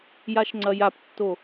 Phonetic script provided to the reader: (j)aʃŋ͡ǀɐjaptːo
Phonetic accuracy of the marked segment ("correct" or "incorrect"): correct